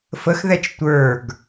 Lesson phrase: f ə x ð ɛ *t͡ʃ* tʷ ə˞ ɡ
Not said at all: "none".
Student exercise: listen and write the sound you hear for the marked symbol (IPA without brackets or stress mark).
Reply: t͡ʃ